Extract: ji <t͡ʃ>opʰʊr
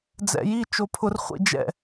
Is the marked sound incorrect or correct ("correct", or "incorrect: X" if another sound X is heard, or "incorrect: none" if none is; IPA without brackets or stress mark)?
correct